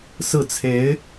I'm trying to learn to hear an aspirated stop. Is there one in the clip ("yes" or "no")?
yes